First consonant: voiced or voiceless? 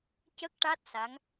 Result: voiceless